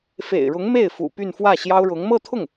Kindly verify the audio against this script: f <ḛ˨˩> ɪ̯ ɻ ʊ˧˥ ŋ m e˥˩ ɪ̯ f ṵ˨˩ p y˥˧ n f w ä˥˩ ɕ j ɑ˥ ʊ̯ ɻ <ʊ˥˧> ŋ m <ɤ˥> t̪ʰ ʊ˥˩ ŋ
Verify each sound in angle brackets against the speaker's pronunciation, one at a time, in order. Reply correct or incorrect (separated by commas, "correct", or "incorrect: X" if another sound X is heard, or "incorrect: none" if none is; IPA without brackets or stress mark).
correct, incorrect: ʊ˧˥, incorrect: ɤ˥˧